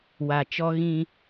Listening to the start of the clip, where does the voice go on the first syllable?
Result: low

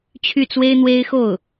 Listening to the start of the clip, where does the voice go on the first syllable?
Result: falling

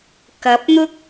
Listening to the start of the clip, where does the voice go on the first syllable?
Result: rising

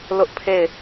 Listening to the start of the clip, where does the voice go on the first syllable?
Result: high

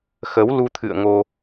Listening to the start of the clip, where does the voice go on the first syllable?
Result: rising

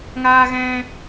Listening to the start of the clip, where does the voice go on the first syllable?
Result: high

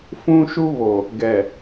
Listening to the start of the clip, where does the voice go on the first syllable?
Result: high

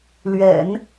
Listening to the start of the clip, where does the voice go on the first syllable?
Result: low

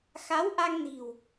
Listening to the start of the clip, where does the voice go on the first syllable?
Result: rising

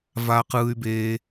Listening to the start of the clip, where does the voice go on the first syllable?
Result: high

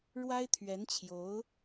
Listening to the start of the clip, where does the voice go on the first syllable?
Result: high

